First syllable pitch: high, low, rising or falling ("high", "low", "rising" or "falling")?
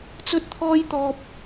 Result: high